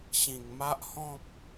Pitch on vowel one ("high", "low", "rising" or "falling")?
low